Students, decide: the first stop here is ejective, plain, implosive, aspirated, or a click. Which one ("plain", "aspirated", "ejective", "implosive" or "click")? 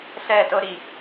plain